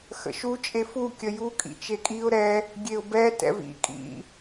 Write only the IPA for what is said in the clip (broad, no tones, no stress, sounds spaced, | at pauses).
x ə̰ ʃ u t͡ʃʼ e f u kʲ ə j u kʼ ḭ t͡ʃ e kʼ i ʊ̯ ɾ ɛ | ɡʲ e ʊ̯ b ɛ t ɛ̰ v ḭ kʼ ḭ